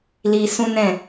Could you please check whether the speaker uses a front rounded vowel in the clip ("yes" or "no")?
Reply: no